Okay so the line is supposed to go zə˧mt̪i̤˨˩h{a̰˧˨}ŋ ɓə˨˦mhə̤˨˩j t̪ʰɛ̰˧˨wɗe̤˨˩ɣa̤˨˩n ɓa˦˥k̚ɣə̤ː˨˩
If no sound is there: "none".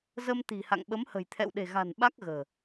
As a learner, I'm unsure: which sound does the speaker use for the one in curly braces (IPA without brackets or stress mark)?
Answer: a̰˧˨